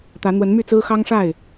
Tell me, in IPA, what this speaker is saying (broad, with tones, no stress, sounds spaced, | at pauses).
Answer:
t̪ ä˨˦ n̪ w ə˨˦ n m y˥˨ t͡s ɹ̩˦ x ɑ˦ ŋ ʂ a˥˨ ɪ̯